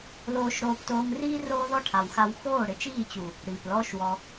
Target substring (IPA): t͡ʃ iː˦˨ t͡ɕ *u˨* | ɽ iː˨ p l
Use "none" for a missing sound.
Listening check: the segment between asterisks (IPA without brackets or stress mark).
u˨